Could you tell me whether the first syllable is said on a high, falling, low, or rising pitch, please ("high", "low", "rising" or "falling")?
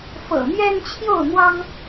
low